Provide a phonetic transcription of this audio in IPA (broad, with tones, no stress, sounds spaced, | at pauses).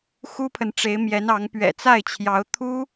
x u˥ pʰ ə˨ n ʈ͡ʂ e˧˥ ɪ̯ m j ɛ˧˥ n ɑ˧˥ ŋ p ɥ ɛ̰˨˩ t͡s a˥˩ ɪ̯ t͡ɕʰ j ɑ˧˥ ʊ̯ t̪ʰ u˥